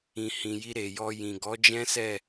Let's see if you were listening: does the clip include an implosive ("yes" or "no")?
no